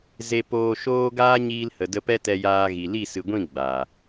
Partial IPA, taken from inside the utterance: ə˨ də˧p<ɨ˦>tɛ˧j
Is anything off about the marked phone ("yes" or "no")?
yes